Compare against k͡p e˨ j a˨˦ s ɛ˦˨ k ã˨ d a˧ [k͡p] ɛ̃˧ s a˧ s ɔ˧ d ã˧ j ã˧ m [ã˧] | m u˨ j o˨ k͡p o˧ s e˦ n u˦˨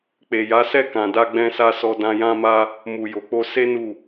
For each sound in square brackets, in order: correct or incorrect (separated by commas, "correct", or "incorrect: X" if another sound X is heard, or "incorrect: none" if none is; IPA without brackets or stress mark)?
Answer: incorrect: ɡ͡b, incorrect: a˧